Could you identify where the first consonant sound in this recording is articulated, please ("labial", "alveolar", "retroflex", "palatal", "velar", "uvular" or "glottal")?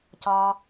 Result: palatal